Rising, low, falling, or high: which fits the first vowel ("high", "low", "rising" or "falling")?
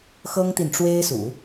high